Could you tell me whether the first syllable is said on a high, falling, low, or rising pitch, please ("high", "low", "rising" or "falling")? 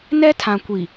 high